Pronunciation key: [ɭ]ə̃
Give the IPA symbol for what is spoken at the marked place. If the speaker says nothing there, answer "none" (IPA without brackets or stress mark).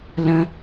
l